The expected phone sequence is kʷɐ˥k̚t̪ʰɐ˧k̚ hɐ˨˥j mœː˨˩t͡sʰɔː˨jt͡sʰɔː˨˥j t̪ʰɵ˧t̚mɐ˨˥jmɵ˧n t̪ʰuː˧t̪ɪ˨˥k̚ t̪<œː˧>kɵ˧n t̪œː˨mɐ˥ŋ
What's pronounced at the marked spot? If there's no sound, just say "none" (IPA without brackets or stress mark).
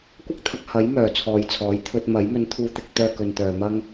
œː˥